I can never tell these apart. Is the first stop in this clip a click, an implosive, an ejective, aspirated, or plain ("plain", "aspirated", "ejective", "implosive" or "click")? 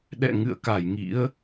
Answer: implosive